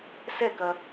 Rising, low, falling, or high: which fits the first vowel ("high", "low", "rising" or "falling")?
falling